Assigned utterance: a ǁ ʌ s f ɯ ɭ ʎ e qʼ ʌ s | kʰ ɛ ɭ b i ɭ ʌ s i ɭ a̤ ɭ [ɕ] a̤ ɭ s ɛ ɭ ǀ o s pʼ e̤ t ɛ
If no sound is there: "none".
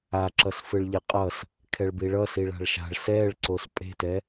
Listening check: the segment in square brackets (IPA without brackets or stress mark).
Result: ʃ